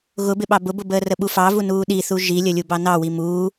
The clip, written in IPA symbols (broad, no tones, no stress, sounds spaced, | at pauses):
ɣ ʊ b ɪ ɓ ɑ b ʊ b ʊ b əː r ə ɓ u f ɑ v u n uː ɗ i θ u ʒ i lʲ ə lʲ u b ɑ n ɑ w i m uː